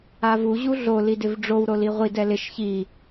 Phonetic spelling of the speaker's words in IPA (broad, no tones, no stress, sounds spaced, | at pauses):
a v u ʑ u ɮ o l i d ɪ v ɖ͡ʐ o w ɾ o l i ʁʷ i d ɛ l ɪ ʃ ç i